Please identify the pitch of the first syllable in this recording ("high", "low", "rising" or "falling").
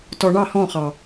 low